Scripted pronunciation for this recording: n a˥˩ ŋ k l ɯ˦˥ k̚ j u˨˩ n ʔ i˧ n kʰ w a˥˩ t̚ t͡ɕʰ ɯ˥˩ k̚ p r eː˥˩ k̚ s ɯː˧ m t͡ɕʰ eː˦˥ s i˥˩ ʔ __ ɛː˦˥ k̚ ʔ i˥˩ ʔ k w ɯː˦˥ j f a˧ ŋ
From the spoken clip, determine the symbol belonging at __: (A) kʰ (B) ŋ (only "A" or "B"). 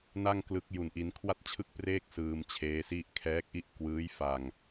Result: A